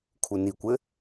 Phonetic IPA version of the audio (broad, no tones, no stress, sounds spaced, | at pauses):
kʰ u n i kʷ ɘ